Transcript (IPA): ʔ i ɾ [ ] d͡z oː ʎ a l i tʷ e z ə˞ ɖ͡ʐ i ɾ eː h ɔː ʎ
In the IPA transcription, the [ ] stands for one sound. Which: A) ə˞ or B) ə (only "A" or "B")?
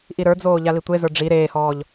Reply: A